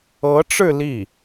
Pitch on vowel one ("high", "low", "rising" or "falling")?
rising